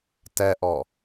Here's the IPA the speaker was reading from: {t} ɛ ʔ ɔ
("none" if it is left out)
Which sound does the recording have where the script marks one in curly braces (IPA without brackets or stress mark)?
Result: t